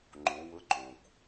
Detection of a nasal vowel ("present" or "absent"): present